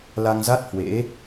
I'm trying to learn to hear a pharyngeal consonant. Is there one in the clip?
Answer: no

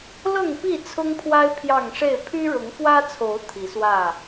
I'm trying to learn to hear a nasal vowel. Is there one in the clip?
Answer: no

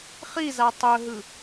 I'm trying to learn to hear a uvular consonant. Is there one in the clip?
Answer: yes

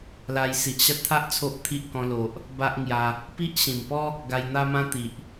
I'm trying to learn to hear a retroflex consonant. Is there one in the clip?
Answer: no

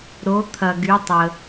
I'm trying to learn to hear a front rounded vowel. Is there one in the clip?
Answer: yes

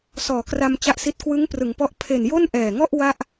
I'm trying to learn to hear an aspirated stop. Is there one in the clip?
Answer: yes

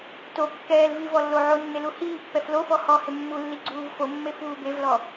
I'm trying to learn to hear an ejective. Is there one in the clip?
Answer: no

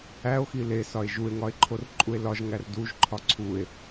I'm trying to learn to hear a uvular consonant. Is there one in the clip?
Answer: no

